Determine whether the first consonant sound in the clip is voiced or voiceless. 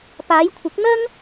voiceless